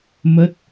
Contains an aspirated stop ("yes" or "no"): no